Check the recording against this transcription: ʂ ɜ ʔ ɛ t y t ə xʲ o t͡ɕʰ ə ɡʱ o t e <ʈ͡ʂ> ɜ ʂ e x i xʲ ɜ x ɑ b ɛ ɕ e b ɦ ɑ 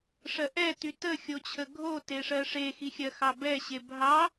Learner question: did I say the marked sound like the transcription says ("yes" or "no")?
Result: no